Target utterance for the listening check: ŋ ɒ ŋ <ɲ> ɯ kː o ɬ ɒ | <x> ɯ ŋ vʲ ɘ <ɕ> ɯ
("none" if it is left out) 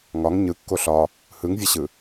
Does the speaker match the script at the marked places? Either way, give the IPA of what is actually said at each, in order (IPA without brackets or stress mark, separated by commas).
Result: ɲ, h, ɕ